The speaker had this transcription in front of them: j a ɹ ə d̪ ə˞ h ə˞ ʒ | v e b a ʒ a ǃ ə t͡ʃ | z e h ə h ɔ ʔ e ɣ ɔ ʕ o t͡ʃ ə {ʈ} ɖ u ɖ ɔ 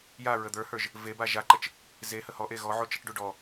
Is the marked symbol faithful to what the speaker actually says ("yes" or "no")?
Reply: yes